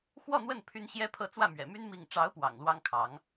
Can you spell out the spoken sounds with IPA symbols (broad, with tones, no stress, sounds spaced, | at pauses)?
x w ɔ˥˧ n̪ w ə˥˩ n pʰ y˥ n ɕ j ɛ˥ pʰ ɤ˥˧ t͡s w ä˥˩ m ɥ ɛ̰˨˩ m y˥ n m i˥˩ ŋ ʈ͡ʂ ɑ˧˥ ʊ̯ p w ɑ̰˨˩ ŋ l w ɑ˥ ŋ kʰ ɑ˧˥ ŋ